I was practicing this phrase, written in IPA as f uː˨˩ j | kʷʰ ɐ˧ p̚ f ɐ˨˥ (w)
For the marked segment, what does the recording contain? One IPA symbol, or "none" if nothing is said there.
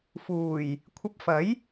j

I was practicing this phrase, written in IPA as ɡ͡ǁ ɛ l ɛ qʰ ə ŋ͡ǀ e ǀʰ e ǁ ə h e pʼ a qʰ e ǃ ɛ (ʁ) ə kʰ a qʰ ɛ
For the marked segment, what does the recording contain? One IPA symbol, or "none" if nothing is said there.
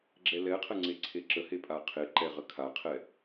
ʁ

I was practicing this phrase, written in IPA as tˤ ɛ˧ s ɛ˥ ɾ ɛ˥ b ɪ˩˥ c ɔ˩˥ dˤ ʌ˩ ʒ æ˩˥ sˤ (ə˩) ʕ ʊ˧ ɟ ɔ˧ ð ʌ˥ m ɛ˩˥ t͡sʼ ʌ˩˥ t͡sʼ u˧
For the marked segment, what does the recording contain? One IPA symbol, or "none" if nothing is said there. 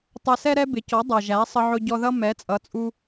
ə˧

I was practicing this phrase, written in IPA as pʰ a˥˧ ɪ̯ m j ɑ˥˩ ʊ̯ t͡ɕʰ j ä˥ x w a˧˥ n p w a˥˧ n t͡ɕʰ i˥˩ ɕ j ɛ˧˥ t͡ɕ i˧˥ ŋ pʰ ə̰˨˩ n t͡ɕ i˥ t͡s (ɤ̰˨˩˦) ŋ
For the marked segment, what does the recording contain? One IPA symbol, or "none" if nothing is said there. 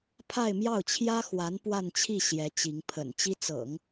ɤ̰˨˩˦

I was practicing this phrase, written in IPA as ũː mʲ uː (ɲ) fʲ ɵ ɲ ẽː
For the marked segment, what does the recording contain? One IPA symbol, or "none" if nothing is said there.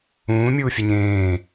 none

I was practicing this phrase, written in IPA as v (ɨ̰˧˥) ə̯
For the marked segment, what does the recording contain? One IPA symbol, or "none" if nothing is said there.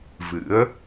ɨ̰˧˥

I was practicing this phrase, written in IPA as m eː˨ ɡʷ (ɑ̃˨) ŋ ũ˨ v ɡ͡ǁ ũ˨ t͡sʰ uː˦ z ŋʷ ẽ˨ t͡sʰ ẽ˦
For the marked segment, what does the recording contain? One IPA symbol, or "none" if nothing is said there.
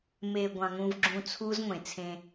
ɑ̃˨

